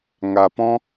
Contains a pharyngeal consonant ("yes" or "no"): no